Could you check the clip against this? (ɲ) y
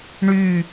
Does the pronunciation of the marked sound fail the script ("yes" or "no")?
yes